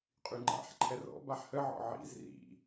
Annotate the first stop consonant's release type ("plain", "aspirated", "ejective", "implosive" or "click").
ejective